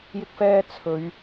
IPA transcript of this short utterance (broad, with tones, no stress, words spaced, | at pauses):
jɪ˥k̚fɛː˥ t͡sʰɵ˨˧ɥ